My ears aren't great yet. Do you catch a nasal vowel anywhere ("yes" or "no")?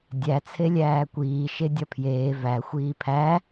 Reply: no